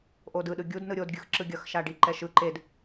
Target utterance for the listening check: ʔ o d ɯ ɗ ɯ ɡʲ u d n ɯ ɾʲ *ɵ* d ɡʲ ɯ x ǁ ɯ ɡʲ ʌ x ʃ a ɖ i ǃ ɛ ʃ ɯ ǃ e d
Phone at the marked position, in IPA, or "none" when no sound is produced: o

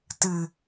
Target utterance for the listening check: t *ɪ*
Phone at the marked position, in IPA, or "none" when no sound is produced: ɨ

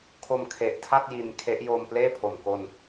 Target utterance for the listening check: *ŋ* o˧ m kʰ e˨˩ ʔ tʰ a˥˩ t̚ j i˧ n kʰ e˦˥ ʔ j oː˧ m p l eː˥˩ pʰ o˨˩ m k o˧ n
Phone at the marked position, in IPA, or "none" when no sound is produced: kʰ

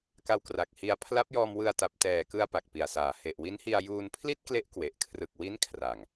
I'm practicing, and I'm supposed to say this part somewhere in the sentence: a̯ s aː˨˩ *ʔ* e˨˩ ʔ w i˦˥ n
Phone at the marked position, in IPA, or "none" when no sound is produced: h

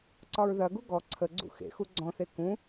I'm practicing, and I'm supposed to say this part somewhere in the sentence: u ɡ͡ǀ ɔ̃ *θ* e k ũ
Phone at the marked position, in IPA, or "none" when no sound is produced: θ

